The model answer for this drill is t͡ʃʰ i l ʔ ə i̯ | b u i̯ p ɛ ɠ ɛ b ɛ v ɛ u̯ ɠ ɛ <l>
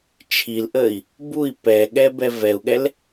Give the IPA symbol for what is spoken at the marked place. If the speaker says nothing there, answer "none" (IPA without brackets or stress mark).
l